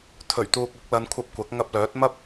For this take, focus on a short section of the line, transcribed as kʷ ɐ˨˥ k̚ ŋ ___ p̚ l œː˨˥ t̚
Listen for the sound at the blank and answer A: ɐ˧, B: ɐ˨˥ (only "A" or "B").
A